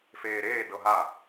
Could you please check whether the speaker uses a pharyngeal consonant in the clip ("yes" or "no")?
no